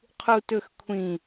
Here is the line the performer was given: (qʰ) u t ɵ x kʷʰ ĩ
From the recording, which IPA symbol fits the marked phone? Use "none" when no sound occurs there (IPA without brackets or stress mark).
qʰ